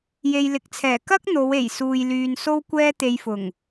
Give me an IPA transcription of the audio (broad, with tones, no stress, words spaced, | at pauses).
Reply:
je˨jlɪ˨˥k̚t͡sʰɛː˨˩ kɐ˥k̚ n̪o˨˧we˨˩j suː˨jlyː˨n so˥wkʷɛː˥t̪e˧jfʊ˨˩ŋ